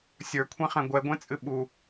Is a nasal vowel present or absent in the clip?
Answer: present